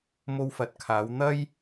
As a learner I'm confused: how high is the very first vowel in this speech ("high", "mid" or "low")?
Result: mid